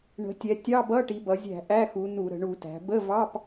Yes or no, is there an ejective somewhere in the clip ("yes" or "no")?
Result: no